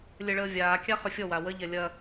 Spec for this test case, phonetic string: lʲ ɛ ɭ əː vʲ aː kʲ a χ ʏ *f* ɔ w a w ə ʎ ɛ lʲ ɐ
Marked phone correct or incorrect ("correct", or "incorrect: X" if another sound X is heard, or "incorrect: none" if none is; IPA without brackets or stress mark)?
incorrect: fʲ